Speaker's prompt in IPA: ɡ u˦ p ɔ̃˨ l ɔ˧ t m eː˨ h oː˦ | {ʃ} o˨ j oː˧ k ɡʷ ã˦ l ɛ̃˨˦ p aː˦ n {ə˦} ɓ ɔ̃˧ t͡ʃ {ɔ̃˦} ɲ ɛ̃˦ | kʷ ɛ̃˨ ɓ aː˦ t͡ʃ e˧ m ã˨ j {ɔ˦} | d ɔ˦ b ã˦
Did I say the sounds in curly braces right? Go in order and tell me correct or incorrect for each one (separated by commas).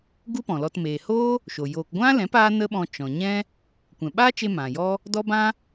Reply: correct, correct, incorrect, correct